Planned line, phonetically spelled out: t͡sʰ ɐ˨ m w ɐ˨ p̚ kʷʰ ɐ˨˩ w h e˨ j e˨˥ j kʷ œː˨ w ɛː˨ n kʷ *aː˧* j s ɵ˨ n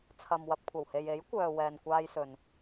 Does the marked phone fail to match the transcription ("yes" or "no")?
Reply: no